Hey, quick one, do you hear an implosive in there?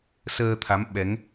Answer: yes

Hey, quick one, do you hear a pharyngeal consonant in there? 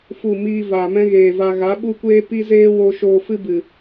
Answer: no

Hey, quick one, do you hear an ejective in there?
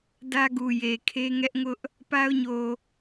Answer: no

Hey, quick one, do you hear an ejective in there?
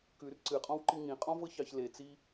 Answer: yes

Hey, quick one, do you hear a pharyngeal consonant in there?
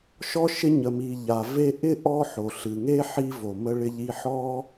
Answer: yes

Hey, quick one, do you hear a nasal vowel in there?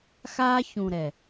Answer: yes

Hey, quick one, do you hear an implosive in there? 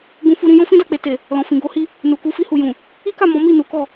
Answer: no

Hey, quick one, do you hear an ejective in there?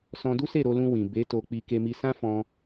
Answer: no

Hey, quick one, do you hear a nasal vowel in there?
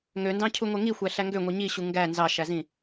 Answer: yes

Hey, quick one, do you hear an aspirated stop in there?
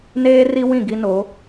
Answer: no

